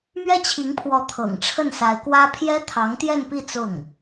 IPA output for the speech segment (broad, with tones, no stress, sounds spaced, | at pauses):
m ɥ ɛ˥ t͡ɕʰ i˧˥ ŋ pʰ w ɔ˧˥ t̪ʰ ɤ̰˨˩ ŋ ʈ͡ʂʰ ə˥˩ n s a˧˥ ɪ̯ k w ä˥ pʰ j ɛ˥ t̪ʰ ɑ˧˥ ŋ t̪ j ɛ˥˧ n p i˥˧ t͡s ʊ˥˩ ŋ